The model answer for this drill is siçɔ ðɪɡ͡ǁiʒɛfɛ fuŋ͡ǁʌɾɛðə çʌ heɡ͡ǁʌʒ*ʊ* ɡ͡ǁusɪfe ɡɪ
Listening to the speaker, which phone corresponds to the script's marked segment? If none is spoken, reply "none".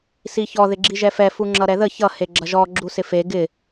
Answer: ɔ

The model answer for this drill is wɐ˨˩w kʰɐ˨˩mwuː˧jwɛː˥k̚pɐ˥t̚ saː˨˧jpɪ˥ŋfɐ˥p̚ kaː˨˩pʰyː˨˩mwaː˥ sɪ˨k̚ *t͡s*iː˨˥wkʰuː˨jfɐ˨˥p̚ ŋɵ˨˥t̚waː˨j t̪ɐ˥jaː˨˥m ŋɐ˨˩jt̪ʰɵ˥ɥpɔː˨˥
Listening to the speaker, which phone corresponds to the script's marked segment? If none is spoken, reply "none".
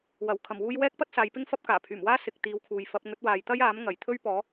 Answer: t̪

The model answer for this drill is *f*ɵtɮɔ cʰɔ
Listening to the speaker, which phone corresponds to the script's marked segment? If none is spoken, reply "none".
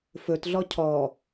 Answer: f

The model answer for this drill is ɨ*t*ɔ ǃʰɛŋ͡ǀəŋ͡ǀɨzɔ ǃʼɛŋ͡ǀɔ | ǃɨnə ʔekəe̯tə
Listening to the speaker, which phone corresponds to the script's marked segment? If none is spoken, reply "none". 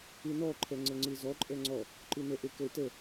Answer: n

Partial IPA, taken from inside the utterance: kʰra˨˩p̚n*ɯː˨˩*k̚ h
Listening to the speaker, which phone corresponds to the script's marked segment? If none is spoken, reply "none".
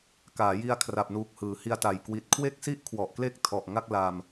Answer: uː˨˩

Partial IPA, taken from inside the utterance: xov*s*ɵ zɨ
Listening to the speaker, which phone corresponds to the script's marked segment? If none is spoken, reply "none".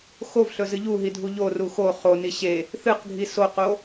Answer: ɬ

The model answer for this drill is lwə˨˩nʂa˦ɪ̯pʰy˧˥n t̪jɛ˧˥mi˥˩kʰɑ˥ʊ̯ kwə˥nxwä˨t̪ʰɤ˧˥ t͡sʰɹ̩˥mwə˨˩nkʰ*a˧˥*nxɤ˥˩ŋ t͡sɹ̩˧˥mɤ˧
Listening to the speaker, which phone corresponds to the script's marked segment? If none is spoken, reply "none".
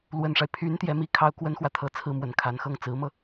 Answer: a˧˥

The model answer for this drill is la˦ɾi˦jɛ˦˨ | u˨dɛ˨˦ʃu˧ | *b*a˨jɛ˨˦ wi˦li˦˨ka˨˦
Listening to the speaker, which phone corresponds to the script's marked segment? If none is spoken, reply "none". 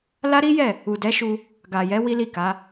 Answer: ɡ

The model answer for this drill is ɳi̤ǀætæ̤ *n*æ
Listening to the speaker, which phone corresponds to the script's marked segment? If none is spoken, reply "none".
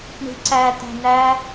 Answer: n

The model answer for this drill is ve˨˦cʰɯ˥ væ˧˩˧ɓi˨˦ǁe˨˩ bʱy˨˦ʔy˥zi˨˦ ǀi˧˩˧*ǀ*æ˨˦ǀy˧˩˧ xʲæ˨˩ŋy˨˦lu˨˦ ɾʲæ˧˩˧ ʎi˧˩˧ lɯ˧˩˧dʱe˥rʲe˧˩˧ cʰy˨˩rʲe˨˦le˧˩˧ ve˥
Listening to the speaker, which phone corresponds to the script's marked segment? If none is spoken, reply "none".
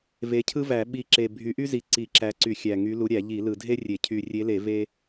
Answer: ǁ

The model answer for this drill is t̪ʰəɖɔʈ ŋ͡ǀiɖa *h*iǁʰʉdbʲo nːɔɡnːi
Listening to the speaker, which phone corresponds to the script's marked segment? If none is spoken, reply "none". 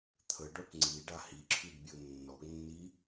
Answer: h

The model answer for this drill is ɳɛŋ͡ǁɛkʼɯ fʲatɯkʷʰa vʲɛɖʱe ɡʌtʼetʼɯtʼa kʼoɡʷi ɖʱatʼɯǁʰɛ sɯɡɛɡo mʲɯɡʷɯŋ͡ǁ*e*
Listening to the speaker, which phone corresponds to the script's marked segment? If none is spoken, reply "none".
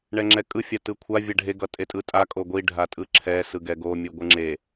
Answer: e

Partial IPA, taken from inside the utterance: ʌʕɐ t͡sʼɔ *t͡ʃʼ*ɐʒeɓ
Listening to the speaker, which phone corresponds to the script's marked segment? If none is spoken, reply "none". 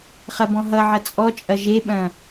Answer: t͡ʃʼ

